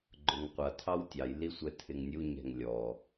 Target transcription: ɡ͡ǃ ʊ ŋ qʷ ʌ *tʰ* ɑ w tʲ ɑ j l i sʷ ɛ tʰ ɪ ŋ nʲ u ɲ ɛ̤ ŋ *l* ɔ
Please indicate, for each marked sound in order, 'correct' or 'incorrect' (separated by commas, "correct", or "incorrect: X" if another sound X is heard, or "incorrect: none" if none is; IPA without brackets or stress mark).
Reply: correct, incorrect: lʲ